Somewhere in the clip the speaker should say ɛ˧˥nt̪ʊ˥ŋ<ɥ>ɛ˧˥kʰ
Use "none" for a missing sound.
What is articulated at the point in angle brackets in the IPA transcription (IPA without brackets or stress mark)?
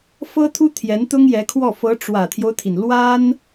j